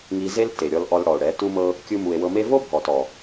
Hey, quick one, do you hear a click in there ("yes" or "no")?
no